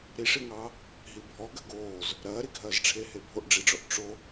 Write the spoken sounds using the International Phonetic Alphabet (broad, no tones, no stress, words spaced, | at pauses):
ɾiʂiŋɑː | ɦibʱɔ ɡɐɡoːz | ɾɐːɾiɡʱɐːzʈ͡ʂʰe hebʱoʔɖ͡ʐiɖ͡ʐɔʔ ʈ͡ʂo